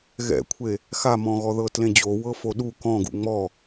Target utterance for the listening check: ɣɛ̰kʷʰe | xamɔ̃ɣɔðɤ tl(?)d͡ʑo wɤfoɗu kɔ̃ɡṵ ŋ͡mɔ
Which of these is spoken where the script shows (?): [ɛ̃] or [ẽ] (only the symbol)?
ẽ